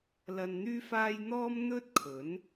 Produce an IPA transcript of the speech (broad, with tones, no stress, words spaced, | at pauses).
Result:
lɐ˧nn̪yː˥faː˥j n̪ɔː˥mn̪ɵ˥t̚ kʰɵ˨˥n